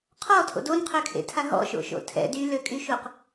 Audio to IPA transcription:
qʰɔtʰo̰ donqʰøkʰḛtʰa ɦɔ̰ʃo̰ʃo̰ tʰɛ̰ dyløkʼyʃuq

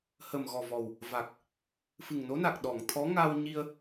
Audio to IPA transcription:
hə˨˩mɣɔ˨˩vɔ˨˩w | va˨˩k̚ | fɨ˨˩ŋno˧˥na˨˩k̚ ɗɔ˨˩˨ŋt̪ʰɔ˧˥ ŋa˧wɲi˧ə̯

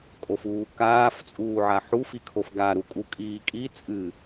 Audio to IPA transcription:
kʼofuːkaːf t͡sʼuːʕaħu fikʰofɡa ɾukʼukʼiːkʼi t͡sʼɨ

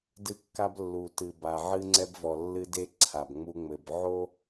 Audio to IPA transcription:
dɨ˦kːa˦b lːu˨tɨ˨ba˨ ʕɨ˦ŋ͡ǀɛ˦bvɔ˨ lːɨ˦de˦ ǀʰa˨bŋ͡mu˦ŋ͡mɘ˨b ʕo˦

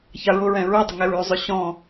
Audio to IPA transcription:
çaɹʊɹɛ̃ ɹʉdˤə ŋɛɹʉzˤʏ ɕɔ̃

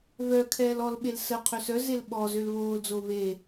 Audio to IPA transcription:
vœ kʰɛːlɔlɓel sə qʰøsœzel ɓɔ zølβoːld͡zo ve

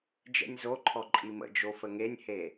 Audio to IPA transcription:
d͡ʒɛ̰nʲzoǃʰɔ ǃʼimə̰d͡ʒo fəŋenʲhe

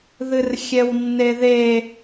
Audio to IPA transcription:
ðɨrxʲɛwnːeðe

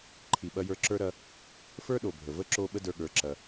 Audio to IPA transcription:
ǃʰi˨ɓɐ˧jə˞˧ ǁə˞˦ɾɐ˦ | fə˞˦ɗo˨bʱə˨və˦ ǁo˧ ɓə˦də˞˧ɠə˞˨˦ǁɐ˧

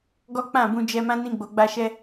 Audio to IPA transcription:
ɡɔ˦k͡pã˦˨ bũ˧d͡ʒɛ˧mã˦ nĩ˧ɡ͡bo˨ɡ͡ba˧ʃɛ˧

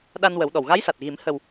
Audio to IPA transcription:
ɗa˧nwə˨˩˦wɗɔ˨˩w ɣa˧˥jsa˨˩t̚ɣi˨˩˦m hə˨˩w

